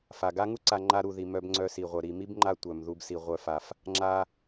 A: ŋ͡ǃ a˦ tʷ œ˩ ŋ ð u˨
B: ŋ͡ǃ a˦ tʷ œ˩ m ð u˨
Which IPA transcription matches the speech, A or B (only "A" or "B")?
B